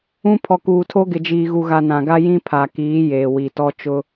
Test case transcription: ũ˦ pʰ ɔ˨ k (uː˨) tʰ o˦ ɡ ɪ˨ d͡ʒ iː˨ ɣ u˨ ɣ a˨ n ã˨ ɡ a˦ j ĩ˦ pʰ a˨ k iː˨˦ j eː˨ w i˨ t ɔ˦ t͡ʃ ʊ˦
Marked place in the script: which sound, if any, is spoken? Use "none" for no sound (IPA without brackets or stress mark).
uː˨